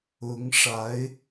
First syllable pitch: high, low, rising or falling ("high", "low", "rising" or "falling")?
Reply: rising